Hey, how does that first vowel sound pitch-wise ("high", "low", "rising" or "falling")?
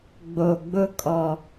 low